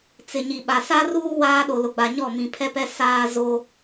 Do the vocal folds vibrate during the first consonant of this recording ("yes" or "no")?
no